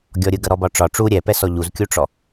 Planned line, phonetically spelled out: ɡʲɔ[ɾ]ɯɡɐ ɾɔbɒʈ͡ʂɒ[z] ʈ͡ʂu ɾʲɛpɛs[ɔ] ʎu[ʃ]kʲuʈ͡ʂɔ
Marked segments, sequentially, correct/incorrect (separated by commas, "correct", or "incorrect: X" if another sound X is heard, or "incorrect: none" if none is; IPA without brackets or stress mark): incorrect: ɾʲ, incorrect: none, correct, incorrect: z